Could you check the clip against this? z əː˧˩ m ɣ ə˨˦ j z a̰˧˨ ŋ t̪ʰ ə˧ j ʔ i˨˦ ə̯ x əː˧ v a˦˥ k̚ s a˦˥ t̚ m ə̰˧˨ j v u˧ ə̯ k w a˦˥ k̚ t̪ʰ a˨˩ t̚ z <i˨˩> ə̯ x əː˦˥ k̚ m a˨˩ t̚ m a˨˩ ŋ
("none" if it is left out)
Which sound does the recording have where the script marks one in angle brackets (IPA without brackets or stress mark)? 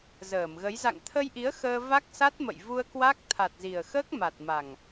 i˨˩